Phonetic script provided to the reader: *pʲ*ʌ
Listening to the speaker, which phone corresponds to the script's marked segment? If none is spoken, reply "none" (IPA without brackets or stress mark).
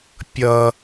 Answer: pʲ